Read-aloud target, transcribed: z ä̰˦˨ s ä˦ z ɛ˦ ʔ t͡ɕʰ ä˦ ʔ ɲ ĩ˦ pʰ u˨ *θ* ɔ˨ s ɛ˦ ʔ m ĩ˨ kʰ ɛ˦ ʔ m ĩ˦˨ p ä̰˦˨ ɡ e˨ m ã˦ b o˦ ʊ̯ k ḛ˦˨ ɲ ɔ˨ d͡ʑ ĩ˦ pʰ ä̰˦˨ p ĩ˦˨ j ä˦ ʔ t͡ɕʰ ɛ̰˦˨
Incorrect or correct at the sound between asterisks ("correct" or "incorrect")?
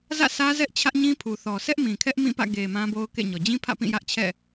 correct